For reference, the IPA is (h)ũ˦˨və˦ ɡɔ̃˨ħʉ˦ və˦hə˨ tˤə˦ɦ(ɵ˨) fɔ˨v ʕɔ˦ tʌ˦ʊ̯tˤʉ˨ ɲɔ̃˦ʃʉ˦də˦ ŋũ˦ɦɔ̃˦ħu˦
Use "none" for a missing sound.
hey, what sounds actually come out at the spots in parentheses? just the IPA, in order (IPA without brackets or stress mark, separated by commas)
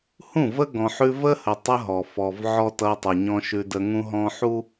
h, ɔ˨